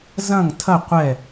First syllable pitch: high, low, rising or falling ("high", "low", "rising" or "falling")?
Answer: falling